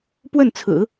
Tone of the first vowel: falling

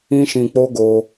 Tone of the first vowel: high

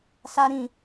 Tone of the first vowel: high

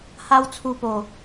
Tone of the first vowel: high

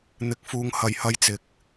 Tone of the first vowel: rising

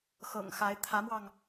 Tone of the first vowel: low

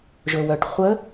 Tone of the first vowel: low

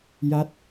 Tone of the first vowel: falling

